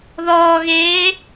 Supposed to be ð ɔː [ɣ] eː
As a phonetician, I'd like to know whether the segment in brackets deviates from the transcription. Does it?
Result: no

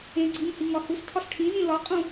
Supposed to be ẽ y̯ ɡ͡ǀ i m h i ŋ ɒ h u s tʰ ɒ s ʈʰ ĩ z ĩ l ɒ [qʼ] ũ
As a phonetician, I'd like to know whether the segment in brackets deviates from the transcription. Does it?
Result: no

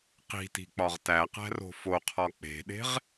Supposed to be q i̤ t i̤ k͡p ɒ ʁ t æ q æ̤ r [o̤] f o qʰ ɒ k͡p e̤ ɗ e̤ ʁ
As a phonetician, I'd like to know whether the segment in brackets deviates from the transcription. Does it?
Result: no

